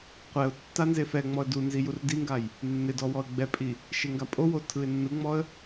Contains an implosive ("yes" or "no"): no